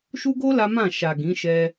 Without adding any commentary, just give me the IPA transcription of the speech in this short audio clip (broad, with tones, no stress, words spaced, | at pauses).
ʃu˦ɡo˦ la˦mã˦˨ ʃa˨ ɡĩ˨˦ʃɛ˧